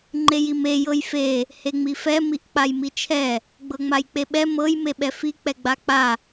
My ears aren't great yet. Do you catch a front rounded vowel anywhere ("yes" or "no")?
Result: no